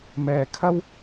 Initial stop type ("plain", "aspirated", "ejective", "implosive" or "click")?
aspirated